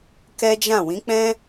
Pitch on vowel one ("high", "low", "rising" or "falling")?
high